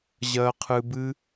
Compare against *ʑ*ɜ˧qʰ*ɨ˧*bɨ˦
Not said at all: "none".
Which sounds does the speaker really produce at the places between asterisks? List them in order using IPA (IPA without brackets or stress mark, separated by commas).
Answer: ʑ, ɨ˧